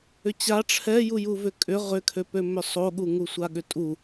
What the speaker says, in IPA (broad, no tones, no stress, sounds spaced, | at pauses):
ʏ t͡ɕ a ʈ͡ʂʰ ɛ j u j u v ʏ kʼ ʏ ʁ ʏ kʰ ø p ø m ʏ sˤ o ɠ u ŋ u sʷ a ɠ ʏ tʼ u